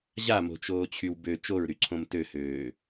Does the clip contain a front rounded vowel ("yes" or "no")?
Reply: yes